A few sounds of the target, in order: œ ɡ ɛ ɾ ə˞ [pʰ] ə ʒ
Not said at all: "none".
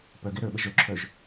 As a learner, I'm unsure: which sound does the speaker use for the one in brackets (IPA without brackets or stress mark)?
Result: ɓ